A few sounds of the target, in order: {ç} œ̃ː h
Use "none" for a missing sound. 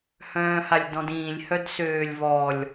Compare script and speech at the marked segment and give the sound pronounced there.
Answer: h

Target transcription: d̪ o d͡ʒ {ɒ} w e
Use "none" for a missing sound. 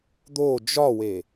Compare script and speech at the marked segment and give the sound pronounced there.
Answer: ɒ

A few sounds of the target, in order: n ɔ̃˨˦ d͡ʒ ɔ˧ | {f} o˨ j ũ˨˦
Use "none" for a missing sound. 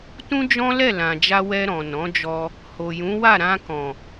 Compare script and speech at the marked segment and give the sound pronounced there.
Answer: h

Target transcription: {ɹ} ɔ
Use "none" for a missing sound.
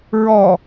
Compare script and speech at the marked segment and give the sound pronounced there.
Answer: ɹ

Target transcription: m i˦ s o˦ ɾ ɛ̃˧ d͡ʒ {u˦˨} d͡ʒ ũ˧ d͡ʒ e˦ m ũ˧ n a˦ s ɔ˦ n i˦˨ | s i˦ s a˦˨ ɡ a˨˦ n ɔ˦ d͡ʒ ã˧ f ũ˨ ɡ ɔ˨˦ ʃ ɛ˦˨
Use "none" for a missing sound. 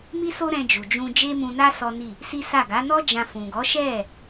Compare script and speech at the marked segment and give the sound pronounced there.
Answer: u˨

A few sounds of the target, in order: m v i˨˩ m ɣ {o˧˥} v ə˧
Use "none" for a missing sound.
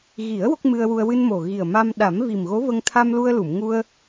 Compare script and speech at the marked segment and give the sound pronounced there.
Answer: o˧˥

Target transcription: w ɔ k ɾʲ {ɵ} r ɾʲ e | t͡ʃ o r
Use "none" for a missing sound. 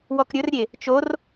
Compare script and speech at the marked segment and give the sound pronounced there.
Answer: ɵ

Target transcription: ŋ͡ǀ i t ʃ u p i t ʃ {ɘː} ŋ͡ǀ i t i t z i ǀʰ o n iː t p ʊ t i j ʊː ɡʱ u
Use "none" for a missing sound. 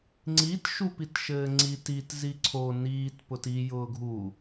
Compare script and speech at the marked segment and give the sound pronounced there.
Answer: ɘː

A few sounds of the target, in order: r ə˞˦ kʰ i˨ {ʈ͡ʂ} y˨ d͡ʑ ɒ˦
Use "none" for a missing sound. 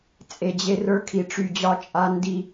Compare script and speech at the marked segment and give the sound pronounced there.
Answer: ʈ͡ʂ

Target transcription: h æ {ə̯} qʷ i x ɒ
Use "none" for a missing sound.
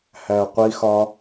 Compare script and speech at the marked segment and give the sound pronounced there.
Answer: ə̯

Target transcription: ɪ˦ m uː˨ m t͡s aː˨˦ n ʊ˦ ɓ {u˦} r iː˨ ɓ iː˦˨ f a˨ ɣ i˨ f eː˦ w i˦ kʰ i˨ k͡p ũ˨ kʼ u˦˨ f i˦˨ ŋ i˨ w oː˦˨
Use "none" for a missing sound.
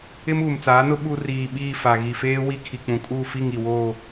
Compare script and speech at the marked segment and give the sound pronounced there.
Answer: u˦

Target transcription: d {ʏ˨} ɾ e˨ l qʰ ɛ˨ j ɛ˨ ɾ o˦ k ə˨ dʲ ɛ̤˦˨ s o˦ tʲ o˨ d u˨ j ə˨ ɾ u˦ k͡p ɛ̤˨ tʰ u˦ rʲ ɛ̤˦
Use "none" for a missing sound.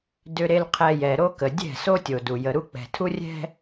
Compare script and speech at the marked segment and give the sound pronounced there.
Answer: ʏ˨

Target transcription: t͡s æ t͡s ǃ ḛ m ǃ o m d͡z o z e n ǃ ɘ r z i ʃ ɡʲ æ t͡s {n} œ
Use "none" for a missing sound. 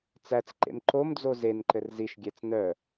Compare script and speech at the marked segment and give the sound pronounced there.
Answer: n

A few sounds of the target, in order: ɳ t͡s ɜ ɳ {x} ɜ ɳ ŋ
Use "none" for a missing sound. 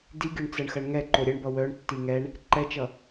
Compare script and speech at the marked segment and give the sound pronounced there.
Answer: x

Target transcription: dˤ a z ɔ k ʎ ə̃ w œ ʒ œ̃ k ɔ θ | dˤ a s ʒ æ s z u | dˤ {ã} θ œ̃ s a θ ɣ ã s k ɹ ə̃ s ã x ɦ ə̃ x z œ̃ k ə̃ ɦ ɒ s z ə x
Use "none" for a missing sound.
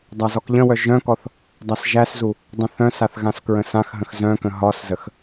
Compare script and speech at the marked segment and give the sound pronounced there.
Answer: ə̃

